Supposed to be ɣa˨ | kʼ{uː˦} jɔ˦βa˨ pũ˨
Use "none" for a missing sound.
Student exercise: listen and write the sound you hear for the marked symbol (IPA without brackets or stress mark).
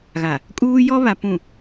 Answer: uː˦